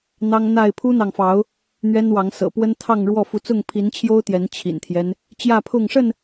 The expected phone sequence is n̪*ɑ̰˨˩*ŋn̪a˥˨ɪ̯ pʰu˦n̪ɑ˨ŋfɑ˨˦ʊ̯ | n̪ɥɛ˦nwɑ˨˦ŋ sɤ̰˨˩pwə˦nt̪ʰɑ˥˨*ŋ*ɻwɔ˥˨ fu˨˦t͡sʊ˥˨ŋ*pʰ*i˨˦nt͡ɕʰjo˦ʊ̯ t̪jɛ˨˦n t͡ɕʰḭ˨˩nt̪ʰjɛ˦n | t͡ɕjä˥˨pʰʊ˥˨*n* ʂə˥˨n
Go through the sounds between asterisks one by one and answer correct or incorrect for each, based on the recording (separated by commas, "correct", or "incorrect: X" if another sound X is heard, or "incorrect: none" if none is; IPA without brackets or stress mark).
incorrect: ɑ˦, correct, correct, incorrect: ŋ